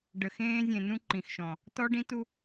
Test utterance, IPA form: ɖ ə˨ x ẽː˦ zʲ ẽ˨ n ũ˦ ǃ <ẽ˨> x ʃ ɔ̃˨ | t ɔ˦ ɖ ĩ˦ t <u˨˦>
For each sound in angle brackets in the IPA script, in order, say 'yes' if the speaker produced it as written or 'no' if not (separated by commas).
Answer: no, no